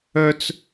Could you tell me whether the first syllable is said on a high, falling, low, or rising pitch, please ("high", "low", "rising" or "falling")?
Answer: high